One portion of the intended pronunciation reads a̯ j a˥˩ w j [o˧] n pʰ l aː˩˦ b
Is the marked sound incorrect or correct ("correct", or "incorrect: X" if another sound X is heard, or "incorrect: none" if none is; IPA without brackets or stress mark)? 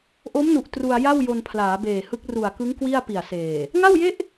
correct